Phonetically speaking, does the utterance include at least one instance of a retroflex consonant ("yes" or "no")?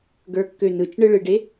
yes